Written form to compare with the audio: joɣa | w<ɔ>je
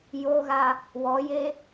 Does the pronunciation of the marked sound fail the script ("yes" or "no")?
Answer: no